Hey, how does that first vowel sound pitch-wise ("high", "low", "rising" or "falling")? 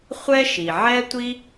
high